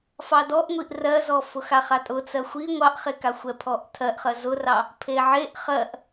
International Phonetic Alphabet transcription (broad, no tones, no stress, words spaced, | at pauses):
fɑdɔʔŋʷiʔ rɜzɔ fʊxaχatʼʊ t͡sɜxʷi ŋʷɑʔχekaxʷɛ pʰɔʔtʰɜʔχɜ zʊrɑ | pʰeʕeʔ χɜʔ